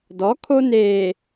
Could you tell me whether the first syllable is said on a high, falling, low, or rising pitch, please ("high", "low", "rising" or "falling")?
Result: rising